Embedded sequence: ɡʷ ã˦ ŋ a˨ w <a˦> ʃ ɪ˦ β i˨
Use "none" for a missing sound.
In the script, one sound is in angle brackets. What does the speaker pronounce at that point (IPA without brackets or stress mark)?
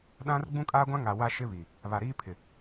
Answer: a˦